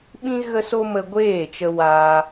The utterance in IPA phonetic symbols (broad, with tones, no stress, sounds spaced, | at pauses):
ɓ ĩ˦ ɣ ə˦ s o˦ m ə˧ ɡʷ eː˦˨ t͡ʃ ə˧ w aː˧